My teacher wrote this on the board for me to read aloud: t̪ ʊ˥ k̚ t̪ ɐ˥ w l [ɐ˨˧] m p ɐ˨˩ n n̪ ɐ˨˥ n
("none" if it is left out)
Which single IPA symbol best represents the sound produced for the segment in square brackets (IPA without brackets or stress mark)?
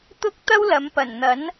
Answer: ɐ˨˧